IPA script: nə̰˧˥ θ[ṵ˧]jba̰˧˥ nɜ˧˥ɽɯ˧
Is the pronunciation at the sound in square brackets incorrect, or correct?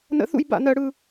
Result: incorrect: ṵ˥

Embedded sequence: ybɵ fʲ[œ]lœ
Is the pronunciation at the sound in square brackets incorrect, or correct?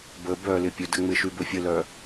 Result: incorrect: ə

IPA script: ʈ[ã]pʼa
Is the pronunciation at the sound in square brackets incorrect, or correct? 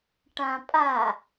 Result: correct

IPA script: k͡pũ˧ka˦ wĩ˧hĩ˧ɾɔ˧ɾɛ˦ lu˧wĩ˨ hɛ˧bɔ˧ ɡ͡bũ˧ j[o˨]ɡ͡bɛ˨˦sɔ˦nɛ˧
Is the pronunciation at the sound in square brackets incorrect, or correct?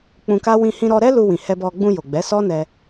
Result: correct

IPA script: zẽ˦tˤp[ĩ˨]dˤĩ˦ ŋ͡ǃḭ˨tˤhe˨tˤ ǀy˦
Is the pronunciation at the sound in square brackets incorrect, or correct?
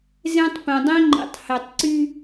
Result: incorrect: ẽ˨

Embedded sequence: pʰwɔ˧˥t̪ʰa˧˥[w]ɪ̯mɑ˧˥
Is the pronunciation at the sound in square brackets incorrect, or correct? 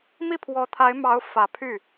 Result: incorrect: none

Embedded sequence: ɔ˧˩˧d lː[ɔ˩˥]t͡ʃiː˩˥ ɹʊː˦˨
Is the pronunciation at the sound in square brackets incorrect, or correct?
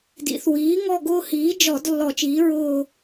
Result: incorrect: ɔ˧˩˧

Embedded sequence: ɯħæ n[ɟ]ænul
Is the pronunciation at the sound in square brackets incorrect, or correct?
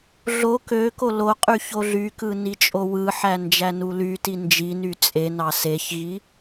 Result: incorrect: d͡ʒ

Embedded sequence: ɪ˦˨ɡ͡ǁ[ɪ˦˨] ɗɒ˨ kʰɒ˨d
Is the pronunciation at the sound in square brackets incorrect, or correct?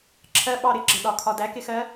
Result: incorrect: ɪ˨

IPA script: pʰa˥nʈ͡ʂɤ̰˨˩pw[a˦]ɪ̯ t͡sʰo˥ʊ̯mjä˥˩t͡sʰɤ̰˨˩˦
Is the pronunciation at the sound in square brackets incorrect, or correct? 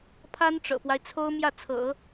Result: correct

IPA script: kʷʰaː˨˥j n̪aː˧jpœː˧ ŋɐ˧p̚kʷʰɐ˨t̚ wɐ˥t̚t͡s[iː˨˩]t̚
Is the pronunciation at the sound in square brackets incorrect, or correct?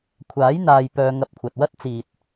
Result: incorrect: iː˨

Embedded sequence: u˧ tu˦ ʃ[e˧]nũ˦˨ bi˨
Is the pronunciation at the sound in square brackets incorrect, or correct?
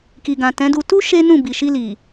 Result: incorrect: e˦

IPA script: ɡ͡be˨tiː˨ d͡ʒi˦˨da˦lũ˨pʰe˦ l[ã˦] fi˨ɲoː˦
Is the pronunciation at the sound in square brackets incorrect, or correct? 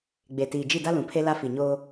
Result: incorrect: a˦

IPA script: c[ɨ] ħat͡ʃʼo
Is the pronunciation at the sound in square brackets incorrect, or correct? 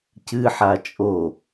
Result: correct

